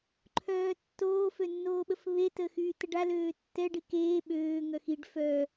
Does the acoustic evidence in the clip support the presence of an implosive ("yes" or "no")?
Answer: yes